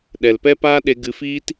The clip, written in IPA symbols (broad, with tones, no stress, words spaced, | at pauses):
ɗɛ˨lpɛ˦paː˦ɗe˧ ɡɨ˧fiː˦t